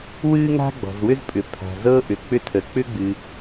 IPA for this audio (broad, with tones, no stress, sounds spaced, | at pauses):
w ɨ˥ ŋ a̤˥ ɡ͡b ɔ̤˩ z w ʏ˥ z pʼ ʏ˩ pʰ a̤˩ z ɤ˥ ʔ ʏ˩ k͡p ʏ˥ tʰ ə˩ k͡p ʏ˥ ɡ͡b ɨ˩